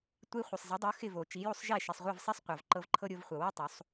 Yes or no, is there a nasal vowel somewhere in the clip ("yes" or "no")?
no